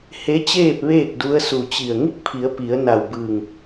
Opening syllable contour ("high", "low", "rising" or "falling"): rising